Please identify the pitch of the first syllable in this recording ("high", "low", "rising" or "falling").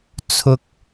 high